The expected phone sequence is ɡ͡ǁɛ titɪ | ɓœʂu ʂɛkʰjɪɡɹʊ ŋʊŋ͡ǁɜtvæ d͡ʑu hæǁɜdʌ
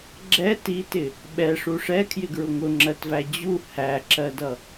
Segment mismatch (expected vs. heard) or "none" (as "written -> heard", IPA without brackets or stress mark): œ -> ɛ